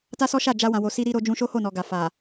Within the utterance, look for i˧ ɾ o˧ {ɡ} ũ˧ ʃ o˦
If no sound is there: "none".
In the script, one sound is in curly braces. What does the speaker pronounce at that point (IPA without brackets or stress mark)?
d͡ʒ